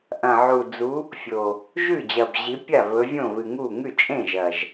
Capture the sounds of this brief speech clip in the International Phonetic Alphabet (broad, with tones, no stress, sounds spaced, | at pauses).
ʔ ɐ̃˨˩ ʕ u˨˩ d͡z u˨˦ | fʲ o˨˩ | ʒ ʉ˥˩ d͡ʑ ɐ˨˩ b ʑ i˨˦ pʲ a˥˩ β ɵ˨˦ vʲ õ˥˩ β ɨ˨˩ ŋ u˥˩ ŋ ʉ˥˩ t͡ʃʼ ẽ˥˩ ʒ ɐ˨˩ ʒ